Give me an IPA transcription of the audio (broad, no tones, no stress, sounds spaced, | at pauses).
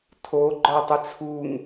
tʰ o ɡ͡ǃ ɔ tˤ ə t͡sʰ u ŋ